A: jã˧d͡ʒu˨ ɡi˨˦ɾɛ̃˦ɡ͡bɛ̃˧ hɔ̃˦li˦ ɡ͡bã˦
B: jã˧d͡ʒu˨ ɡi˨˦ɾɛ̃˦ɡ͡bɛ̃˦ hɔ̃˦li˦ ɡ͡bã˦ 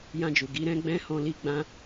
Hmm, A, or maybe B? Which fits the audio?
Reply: B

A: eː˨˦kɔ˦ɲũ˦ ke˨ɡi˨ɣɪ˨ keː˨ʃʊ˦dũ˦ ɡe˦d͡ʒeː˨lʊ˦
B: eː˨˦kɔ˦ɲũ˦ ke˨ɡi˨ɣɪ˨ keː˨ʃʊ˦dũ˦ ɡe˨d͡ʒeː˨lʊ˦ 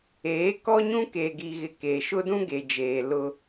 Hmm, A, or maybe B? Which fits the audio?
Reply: B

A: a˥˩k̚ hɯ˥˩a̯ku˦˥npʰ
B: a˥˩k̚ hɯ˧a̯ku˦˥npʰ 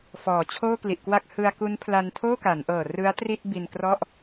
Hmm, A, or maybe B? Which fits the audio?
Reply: B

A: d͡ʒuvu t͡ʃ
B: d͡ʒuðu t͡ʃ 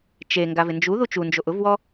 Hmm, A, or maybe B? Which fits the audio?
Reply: B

